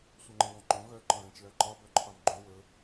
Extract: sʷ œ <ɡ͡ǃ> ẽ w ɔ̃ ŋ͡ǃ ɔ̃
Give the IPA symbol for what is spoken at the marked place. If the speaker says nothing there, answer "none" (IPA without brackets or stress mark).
ŋ͡ǃ